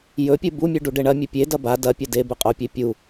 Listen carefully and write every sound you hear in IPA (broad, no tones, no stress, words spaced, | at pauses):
jɵpʲɨ bumʲʉ ɖuɖeɳɐmʲɵ pʲedɐ ba dɐpʲɐ de bʉqʼopʲe pʲu